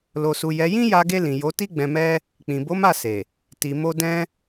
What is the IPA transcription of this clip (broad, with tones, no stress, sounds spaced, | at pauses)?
l o˨ s u˨ j ɛ˨˦ j ĩ˦ j a˧ ɡ e˧ l ĩ˨ j o˨˦ t i˦ ɡ͡b ɛ̃˧ m ɛ˦ | k͡p ĩ˨ b o˨˦ m a˦˨ s e˨ | t i˨ m o˧ d ɛ̃˧